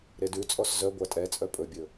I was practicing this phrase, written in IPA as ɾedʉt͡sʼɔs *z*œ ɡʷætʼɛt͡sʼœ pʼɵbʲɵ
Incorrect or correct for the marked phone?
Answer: correct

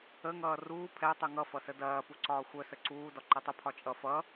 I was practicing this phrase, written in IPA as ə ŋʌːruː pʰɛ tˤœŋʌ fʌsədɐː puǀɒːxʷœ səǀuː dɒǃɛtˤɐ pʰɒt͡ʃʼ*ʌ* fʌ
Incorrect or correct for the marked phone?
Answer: correct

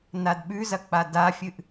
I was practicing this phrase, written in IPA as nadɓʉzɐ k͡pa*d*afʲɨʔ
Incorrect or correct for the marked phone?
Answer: correct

